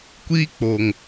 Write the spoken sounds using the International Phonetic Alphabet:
kʷ iː˦ k͡p oː˨ ŋ

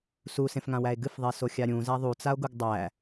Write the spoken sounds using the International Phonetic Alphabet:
s u s ẽ f ŋ ã w æ e̯ ɡ ɨ f ðˤ e s o xʲ a ɾʲ ũ z æ ðˤ u t͡s a o̯ ɡ u ɡ dˤ æ

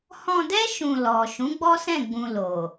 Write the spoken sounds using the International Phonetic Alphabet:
h ɔ̃˧ d ɛ˦ ʃ ũ˧ l ɔ˨ ʃ ũ˨˦ ɡ͡b ɔ˦ s ɛ̃˦˨ ɡ͡b ũ˧ l o˨

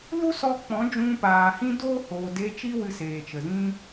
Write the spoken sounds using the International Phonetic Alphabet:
l u˦ s ɔ˧ k͡p ɔ̃˨˦ d͡ʒ ũ˧ p aː˨ h ĩ˦ d oː˦ h oː˨ d e˧ t͡ʃ i˦ w ɨ˧ s eː˨ t͡ʃ ə˨ z ĩ˦

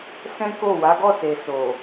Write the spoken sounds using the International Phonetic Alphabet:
s ɛ̃˦ k o˦˨ w a˨˦ ɡ ɔ˦˨ s e˨ s o˨

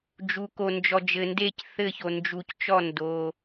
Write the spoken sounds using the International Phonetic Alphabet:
d͡ʒ u˩ k o˩ n d͡ʒ ɔ˩ d͡ʒ ɘ˩ n d e˧˩ c θ ɘ˧˩ ç o˩ n d͡ʒ u˩ c t͡ʃ ɔ˧˩ n d o˩

